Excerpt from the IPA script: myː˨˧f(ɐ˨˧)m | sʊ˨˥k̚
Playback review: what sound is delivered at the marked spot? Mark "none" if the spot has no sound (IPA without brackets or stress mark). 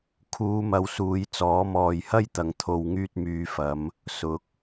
ɐ˨˧